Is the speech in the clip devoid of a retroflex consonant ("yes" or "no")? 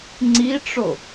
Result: no